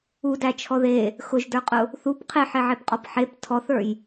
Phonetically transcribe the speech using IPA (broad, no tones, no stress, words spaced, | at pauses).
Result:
udæt͡ʃʰɔ ðe | xʊʒdə˞qʼʊ | θup qʰeħeʕepqʼɔp ħep tʰɔθə˞j